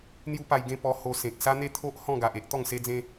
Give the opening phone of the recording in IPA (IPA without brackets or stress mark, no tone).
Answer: n̪